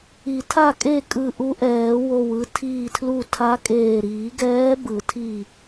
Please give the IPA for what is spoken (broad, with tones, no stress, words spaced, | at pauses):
i˨˩˦tʰa˥˨kʼe˥˨ kʼɯ˧˩ʔu˧˥ʔɛː˨˩˦wo˧˩w ɯ˧tʰiː˧˩tʰlu˧˩ tʰa˧˥kʼeː˧˩ ɾiː˨˩˦ɡɛː˧˥ bɯ˨˩˦tʰi˧˩